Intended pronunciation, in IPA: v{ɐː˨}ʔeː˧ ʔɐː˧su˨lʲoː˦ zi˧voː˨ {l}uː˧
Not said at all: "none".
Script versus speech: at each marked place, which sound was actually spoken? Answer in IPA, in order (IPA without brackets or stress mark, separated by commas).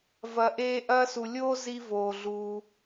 ɐ˨, ɮ